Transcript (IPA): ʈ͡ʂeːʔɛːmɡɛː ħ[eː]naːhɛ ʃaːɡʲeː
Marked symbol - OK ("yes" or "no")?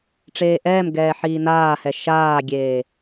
no